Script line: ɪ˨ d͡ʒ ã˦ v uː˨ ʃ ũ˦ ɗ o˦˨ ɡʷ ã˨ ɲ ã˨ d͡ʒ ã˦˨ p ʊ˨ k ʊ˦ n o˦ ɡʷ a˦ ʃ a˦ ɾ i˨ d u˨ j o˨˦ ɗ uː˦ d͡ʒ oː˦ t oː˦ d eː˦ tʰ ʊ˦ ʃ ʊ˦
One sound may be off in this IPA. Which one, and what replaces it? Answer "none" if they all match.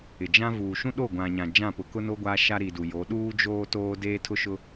none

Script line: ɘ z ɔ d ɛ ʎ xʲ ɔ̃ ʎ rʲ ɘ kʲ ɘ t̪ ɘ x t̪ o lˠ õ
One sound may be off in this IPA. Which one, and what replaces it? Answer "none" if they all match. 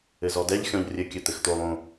none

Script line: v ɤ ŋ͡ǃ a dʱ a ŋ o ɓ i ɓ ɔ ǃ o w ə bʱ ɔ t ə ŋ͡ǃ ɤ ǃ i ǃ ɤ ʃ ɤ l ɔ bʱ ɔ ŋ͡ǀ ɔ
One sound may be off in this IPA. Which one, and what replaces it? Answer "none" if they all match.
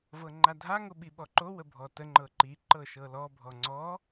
none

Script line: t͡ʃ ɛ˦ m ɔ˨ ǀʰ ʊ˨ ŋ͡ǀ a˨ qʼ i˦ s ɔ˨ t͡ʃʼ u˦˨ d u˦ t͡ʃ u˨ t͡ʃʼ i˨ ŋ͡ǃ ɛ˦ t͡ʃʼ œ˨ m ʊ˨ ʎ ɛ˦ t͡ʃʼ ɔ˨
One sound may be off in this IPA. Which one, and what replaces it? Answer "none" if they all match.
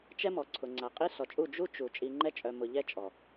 d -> d͡ʒ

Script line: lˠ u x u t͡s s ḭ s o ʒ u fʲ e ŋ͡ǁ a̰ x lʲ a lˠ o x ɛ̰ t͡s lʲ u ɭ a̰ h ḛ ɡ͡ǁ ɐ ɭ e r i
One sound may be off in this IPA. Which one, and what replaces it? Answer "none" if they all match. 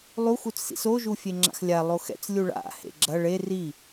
none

